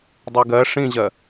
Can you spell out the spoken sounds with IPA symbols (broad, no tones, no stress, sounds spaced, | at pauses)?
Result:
dˤ y ɡ ɜ ʂ ĩ ʑ ɜ